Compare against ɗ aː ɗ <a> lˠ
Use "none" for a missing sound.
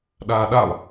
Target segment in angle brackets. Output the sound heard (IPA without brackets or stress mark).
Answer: a